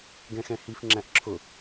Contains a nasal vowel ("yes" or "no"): yes